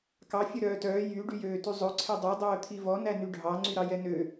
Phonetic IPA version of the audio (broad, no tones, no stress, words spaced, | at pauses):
kɑ fʲœɾœːtœː jy ɖyjøːtyzˤɵ ǀʰɛdˤø dˤœːt̪ʰivɔ nænyɖʱɑ ŋ͡ǀyɾɑjɛnø